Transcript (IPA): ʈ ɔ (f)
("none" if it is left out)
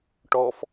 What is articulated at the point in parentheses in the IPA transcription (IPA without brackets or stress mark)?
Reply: f